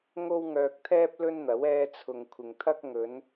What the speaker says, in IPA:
ŋo˥wŋœː˧k̚t̪ʰɛː˥p̚ lɵ˥nn̪ɐ˨˥w ɛː˧t͡sʰʊ˨ŋ kʷʰɪ˨ŋt̪ʰɐ˥k̚ ŋɵ˨˧n

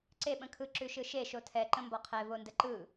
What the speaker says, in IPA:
ǀe ɓə̃kʰɯ ǁʉʃɯʃe ʃotʰɛ ǃə̃mbɒqʰɛ vondəǃɯ

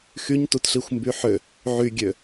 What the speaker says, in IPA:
xyɲtutɬixʷmby ħø | ʕyɡʲø

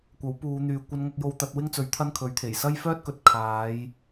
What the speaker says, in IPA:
kʷɐ˨˥wpuː˨˧n̪yː˨ kʷɐ˧nŋɐ˧k̚jo˧w t̪ɐ˨˥t̚wɪ˥ŋt͡sɵ˨˥ɥ t̪ʰɐ˥nkʰɵ˨˥ɥt̪ʰe˨˩j sɐ˥jfœː˥t̚kɵ˨t̚ kʰaː˨˧j

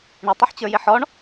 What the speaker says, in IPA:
ɳɪtˤɨħt͡ɕə˞jɪ ħɔɳ

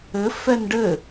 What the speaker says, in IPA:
ɘ fɛnɖɘ

